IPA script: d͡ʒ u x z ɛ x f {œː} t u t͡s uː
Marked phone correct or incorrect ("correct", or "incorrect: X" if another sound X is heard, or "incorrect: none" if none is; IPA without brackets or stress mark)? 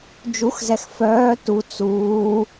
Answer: correct